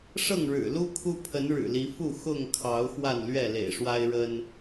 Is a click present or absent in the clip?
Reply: absent